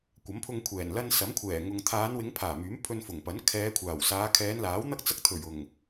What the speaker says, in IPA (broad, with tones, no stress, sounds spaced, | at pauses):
kʷ ɐ˨˥ m pʰ ʊ˧ ŋ kʷʰ ɛː˨˩ n l ɐ˧ n s ɐ˨˥ m kʷʰ ɛː˨˩ ŋ ʊ˨ ŋ t̪ʰ aː˨˧ n w ɪ˨˧ ŋ pʰ aː˨˩ m yː˨˥ m pʰ ɵ˧ n f ʊ˨˩ ŋ p ɐ˨˥ n kʰ ɛː˨˧ kʷʰ aː˨˩ w s aː˨˧ kʰ ɛː˨˧ n l aː˨˥ w n̪ ɐ˥ k̚ t͡s ɐ˧ k̚ t̪ʰ ɵ˨˩ ɥ ʊ˨˩ ŋ